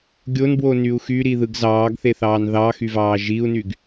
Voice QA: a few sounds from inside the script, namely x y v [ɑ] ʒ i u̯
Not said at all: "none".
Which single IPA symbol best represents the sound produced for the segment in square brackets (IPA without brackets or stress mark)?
ɑː